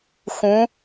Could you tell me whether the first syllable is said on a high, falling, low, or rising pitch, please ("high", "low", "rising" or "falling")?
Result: rising